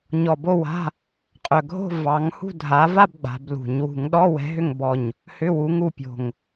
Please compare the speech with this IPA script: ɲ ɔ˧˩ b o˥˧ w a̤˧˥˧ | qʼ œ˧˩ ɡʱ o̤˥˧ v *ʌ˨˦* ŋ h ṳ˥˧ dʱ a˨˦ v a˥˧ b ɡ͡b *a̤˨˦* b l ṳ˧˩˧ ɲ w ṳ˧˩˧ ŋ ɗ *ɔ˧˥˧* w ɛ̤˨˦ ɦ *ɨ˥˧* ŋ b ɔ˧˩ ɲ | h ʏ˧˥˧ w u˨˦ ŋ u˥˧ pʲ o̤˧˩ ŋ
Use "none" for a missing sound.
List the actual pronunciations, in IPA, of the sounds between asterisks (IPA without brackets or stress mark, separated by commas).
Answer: ɑ˨˦, a̤˨˦, ɔ˧˥˧, ʏ˥˧